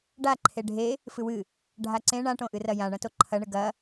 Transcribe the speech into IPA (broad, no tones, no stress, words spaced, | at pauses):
ɖa ǃʰeɖʱe | fɨwɨ | ɖʱaǀẽ ɳãʈõ ʔɨrɐjãɳɐ̃ toǃʰɐɳɨ ɡɐ